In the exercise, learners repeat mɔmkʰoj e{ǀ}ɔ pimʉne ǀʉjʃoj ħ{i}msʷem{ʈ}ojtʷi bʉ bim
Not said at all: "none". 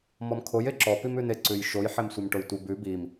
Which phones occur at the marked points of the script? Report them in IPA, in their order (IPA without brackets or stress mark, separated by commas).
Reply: ǁ, e, ʈ